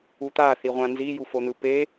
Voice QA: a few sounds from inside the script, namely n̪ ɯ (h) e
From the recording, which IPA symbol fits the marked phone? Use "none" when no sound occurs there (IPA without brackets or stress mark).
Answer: p